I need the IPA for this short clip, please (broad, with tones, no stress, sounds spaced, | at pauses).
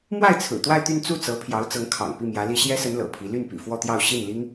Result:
m w a˥˩ ɪ̯ t͡sʰ ɹ̩˨˩ t̪ w a˥˧ ɪ̯ t̪ y˥˧ n t͡s u˥˩ t͡s ɤ˧˥ pʰ j ɑ˧˥ ʊ̯ t͡s ɤ˧˥ ŋ kʰ ɑ̰˨˩ ŋ p i˥˩ m j ä˧˥ l i˥ ɕ j ɛ˥ s ə˧˥ n l ɤ̰˨˩ pʰ i˧˥ l y˥˩ n p ḭ˨˩ f w ɔ˥˧ t̪ j ɑ˥˧ ʊ̯ ɕ i˥˩ n l i˥ ŋ